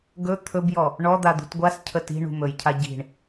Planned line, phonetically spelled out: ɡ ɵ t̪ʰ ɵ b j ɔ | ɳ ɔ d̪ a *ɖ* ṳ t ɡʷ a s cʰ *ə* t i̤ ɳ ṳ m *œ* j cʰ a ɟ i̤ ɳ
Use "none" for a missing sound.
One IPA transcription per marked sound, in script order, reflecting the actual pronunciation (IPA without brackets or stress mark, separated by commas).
d̪, ə, ɵ